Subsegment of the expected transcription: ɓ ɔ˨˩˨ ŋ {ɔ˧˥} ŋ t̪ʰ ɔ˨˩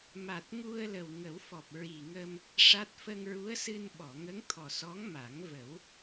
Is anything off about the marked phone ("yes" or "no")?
yes